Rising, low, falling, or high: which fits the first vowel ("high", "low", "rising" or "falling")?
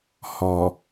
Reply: low